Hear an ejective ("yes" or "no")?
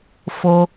no